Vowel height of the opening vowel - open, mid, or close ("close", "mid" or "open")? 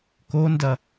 mid